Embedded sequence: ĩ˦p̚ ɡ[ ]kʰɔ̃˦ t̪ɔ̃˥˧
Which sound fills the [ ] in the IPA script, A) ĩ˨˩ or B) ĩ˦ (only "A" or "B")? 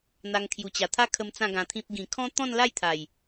A